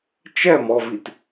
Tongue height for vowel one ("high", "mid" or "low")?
mid